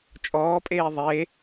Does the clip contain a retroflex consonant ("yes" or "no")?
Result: no